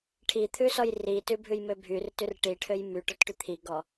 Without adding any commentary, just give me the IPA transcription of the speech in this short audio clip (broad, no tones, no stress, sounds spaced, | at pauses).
ʈʰ i t̪ʰ ʉ s ɔ j r i t ʉ bʱ ʉ j m ø bʱ y r t ʉ r ʈ i ʈʰ ø j m y ʈ ɔ t ʈ y t̪ʰ i ɡ ɔ